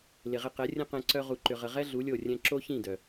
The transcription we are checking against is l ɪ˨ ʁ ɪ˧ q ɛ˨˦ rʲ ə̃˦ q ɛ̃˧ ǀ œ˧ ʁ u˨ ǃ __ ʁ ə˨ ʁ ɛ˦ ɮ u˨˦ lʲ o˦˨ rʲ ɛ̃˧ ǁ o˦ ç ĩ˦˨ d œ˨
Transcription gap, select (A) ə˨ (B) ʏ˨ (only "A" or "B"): B